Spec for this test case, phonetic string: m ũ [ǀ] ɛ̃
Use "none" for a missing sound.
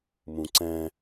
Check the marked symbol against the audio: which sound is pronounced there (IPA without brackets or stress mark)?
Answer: ǀ